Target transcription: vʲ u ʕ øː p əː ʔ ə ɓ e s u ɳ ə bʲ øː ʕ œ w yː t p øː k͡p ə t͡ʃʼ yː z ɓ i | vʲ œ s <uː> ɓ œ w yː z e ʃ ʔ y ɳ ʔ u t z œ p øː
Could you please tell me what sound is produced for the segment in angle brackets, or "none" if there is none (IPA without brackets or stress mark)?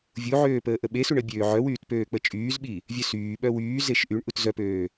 yː